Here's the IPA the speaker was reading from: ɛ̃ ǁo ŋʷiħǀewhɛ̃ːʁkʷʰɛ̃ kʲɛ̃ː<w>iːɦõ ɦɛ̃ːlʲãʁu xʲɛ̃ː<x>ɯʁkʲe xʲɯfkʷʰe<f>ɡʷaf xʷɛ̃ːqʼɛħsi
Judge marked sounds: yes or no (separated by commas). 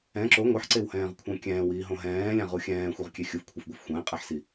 yes, no, yes